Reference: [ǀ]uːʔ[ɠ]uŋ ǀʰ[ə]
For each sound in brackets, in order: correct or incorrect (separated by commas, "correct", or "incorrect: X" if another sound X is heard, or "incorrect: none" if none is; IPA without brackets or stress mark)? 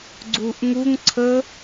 incorrect: ɡ͡ǀ, incorrect: ŋ, correct